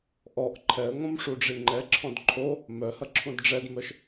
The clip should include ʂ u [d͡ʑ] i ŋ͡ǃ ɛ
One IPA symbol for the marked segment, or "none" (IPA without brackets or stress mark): ɖ͡ʐ